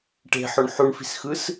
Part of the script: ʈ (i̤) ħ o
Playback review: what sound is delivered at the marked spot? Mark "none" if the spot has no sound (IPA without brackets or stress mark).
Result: e̤